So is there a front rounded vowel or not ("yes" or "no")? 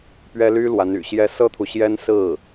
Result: yes